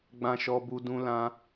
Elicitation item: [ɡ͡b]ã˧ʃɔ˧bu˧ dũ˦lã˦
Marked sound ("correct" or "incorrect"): correct